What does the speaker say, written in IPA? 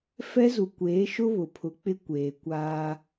f ɛ˦ z u˨ kʷ eː˨˦ ʃ ʊ˦ β ʊ˨ pʰ ʊ˨˦ k͡p ɪ˦ kʷ eː˨ kʷ aː˦

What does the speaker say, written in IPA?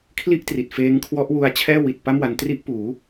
kʰ l i˥˩ ʔ t r i˨˩ t̚ f eː˦˥ ŋ kʰ w ɔ˦˥ ʔ w u˦˥ a̯ t͡ɕʰ ɛː˥˩ w i˨˩ t̚ p a˥˩ m w a˧ n t r i˥˩ ʔ p uː˩˦

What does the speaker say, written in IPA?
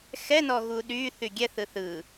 x ɛ n ɔ ɣ u ɗ y θ y ɡʲ ɛ θ ɯ θ ɯ

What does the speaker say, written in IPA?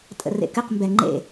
tʼ ə̰ r ḛ k ɨ q m b ɛ ŋ͡ǃ ḛ

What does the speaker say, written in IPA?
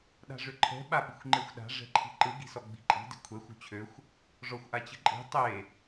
ɗ a̤ ʐ ʏ ǃʰ ɛ̤ ɓ a ɓ i̤ xʷ ŋ͡ǃ e xʷ ɗ a̤ ʐ ɛ̤ ǃʰ i̤ ǃ ɯ ɡ i̤ s ɔ ɡ͡b i̤ ǃʼ i̤ d i̤ kʷʰ ɛ xʷ o̤ t͡ɕʰ ø xʷ | ʐ ɔ xʷ ʔ a t͡ɕ ɯ ǃʼ i̤ tˤ e

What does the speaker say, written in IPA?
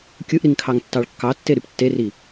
kʲ ɯ ʔ ɾ i ŋ kʰ ɑ ŋ tː ɑ ɭ kː ɑ tː e ɾ y p tː e r i

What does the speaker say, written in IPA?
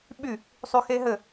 ɓ y | sˤ y x e ɦ ɘ

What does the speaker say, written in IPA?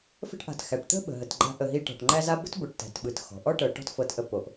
f ə̤˥ ʈ ʔ a̤˨ t x æ˩ ʈ t̪ ə̤˥ ɓ ə̤˩ ɦ ə˩ t ɡ͡ǃ a̤˦ ʔ ə˨ ɦ i˦ ʈ ɔ̤˩ ʈ ŋ͡ǃ æ˦ z a˦ b ə̤˥ t b o˨ ʈ t æ̤˩ t ɓ ɯ˩ t x ɔ̤˩ ʔ ɔ˥ ʈ ɤ˨ ʈ ɔ̤˦ t f ɤ˨ t ʔ ə˨ p o˩ ʔ

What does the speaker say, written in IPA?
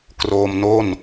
k r oː˧ m n o˥˩ n

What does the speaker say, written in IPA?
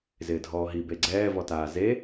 z ɪː dʱ ɔː ɦ i b e ɡ͡ǀ ɛː v ɔ t aː z e

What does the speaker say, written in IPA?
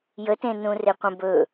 j ə t ẽ n ũ r e qʷ ə̃ b ɵ

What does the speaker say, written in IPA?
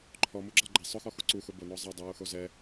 ǃʰ ɔ m u ɡ͡ǁ a ɡ͡ǃ e sˤ ʊ x ɔ x u ǀ u x ʊ b o n ɔ zˤ a dˤ i w u x o z ɛ

